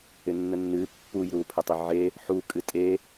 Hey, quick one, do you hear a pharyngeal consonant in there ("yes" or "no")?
yes